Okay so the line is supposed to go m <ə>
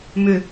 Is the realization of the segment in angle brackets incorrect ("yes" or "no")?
yes